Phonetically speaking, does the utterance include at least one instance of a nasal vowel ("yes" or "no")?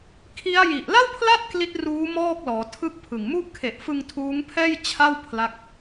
no